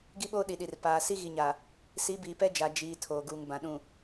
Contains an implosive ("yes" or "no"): yes